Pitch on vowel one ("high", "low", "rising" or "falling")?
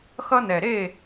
high